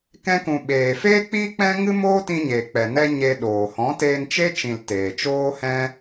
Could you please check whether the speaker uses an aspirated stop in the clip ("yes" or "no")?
no